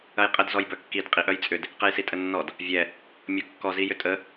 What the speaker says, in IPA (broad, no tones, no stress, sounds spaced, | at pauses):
ɐ j qʼ ə d z ɔ j b œ kː i d qʼ i ʔ œ j t͡sʼ ʏ d | q ɛ j s i tʼ ə nː ɔ d | vʲ ɛ | mʲ ɔ kː ɔ z i j ʏ tʼ ə